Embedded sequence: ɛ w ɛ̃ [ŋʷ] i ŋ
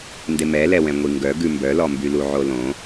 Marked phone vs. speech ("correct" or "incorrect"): correct